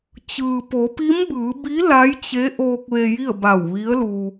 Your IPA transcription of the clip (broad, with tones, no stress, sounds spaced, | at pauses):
t͡ɕ ɯː˩ p o˩˧ p i˧˥ m b ɯː˩˧ b i˧˥ l a˧˥ j t͡ɕ e˧˥ ʔ oː˧ k̚ ʋ e˧ j i˥˨ ə̯ b a˧˩ w ʋ i˧˥ ə̯ l u˧